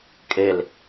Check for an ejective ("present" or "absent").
present